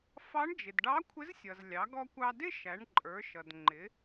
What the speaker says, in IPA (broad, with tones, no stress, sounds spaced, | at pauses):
f ɑ˧˥ ɳ d͡ʒ ɪ˩ d ɖ ɑ˧˥ kʷʰ ɪ˧˥ z sʲ ʌ˩ z lʲ ɑ˩˧ ɡ ɔ˧ kʷ ɑ˧ d ɪ˥ ʃ æ˩˧ ɳ ǃʼ ə˞˩˧ ʃ ʌ˩ d ŋ͡ǃ ɪ˩˧